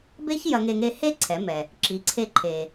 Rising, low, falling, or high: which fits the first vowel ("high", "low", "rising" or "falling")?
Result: high